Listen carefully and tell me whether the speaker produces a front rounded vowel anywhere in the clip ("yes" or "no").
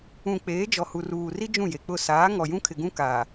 no